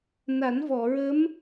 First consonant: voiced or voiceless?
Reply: voiced